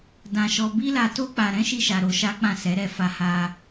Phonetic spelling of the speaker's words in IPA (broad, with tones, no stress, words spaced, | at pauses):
dã˧ʃɔ˧ bi˦la˧to˦ k͡pa˧ ɾɛ̃˦ʃi˧ʃa˨ ɾo˧ʃa˦k͡pã˦˨sɛ˨˦ ɾɛ˦˨fa˧ha˧